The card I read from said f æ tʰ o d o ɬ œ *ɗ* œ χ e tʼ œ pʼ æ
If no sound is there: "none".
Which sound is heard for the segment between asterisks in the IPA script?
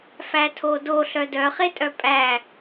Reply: d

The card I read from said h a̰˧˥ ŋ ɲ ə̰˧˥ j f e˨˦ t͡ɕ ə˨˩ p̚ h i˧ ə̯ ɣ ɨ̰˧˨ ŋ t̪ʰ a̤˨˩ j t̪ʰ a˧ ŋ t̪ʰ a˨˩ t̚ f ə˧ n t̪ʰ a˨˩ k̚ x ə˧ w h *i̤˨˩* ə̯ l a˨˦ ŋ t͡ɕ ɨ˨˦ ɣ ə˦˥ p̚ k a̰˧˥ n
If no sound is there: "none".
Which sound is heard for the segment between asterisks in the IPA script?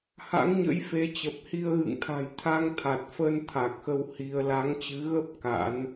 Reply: i˧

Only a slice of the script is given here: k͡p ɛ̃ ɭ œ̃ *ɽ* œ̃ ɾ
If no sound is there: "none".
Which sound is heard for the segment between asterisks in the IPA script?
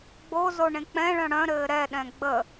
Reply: ɽ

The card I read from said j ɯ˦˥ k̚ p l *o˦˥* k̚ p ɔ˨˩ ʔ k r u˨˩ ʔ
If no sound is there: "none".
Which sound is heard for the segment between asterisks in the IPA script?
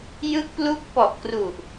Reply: u˦˥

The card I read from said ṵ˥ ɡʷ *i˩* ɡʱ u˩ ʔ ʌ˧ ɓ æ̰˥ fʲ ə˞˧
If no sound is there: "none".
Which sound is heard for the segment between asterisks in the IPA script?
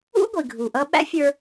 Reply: i˩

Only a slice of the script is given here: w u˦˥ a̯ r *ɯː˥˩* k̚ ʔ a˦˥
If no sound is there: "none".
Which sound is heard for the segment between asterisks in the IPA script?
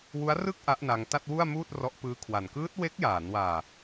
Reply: ɯ˥˩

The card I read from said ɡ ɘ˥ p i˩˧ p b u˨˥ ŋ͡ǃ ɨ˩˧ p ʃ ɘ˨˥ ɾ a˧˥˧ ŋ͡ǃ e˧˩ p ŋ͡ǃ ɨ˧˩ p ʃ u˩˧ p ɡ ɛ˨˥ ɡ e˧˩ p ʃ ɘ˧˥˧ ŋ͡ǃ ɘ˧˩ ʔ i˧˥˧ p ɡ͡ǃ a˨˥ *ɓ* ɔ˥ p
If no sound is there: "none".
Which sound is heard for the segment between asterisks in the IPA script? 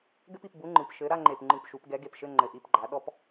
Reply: ɗ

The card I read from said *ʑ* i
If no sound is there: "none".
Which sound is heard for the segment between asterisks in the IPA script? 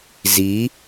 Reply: z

